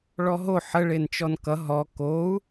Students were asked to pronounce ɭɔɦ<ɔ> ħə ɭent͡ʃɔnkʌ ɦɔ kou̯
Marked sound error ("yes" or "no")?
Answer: yes